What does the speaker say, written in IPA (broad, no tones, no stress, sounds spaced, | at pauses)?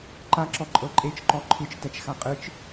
ǃ a ǁ ɔ ǃʼ ɤ ǃʼ e t͡ʃ ǃ ɔ ǃʰ ɯ t͡ʃ t ɛ t͡ʃ x a qʼ ɯ t͡ʃ